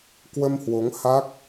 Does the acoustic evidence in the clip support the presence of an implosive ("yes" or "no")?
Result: no